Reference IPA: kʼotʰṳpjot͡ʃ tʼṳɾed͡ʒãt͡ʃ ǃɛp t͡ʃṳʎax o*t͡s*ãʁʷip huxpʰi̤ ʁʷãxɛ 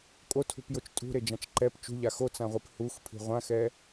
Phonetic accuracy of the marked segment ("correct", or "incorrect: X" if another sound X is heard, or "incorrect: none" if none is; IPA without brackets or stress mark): correct